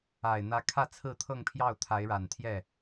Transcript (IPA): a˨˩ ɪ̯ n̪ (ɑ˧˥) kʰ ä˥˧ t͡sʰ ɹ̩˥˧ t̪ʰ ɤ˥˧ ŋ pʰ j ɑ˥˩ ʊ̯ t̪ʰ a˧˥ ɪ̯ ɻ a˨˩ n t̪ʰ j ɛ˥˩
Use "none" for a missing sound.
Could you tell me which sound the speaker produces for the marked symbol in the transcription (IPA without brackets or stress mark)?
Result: ä˧˥